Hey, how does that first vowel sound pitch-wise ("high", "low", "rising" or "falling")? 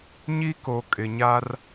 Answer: high